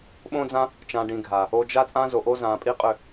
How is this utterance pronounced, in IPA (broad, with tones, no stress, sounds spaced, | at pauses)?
ɓ õ˦ d͡z ã˦ | t͡ʃ ã˨ ɖ ĩ˨ ɡʱ a˨ | o˨ d͡ʒ a˧ t͡sʼ ã˧ z o˨ ʔ o˧ z ã˨ pʼ i˦ qʼ ʏ˦˨